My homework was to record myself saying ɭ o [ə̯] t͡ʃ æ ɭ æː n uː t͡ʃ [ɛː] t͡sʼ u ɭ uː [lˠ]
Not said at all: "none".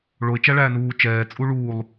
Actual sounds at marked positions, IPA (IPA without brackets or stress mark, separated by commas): ɪ̯, ɛː, lˠ